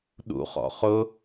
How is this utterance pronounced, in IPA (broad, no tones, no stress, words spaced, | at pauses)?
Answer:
ɗṵχɔ̰ χʊ